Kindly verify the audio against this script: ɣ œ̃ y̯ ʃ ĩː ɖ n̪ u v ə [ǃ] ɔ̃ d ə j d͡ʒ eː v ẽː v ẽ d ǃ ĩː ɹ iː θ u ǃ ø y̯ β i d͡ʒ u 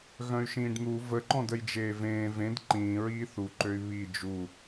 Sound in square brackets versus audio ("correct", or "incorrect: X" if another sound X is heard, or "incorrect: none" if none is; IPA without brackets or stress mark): correct